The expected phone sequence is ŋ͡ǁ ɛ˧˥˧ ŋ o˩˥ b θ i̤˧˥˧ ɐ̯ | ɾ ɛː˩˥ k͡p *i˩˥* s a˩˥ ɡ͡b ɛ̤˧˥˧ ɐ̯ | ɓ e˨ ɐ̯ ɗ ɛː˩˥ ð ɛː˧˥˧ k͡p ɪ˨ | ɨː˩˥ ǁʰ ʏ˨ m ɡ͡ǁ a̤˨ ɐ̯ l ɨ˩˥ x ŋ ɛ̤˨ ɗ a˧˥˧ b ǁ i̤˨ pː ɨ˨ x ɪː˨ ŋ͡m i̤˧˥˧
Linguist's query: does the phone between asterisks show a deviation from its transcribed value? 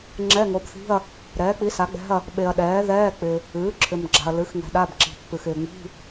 no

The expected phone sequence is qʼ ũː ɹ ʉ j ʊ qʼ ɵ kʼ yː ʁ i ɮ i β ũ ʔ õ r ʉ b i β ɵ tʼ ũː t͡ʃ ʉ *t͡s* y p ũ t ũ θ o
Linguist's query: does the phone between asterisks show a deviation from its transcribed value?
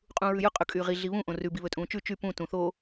yes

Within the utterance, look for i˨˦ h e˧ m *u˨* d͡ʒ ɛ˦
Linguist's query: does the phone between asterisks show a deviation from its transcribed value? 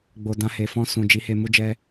yes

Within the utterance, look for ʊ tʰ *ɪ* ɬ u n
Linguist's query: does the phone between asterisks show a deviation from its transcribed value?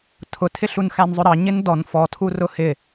no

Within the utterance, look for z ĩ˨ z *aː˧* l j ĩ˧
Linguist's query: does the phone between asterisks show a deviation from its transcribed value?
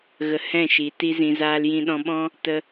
no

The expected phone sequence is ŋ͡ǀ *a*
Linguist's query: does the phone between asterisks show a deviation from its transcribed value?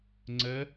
yes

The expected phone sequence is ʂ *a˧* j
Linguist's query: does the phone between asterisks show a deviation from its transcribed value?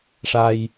no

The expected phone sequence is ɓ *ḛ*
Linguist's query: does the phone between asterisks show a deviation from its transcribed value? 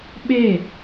yes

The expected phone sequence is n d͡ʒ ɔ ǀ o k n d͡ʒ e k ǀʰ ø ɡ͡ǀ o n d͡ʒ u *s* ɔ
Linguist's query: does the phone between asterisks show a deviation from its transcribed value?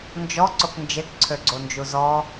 yes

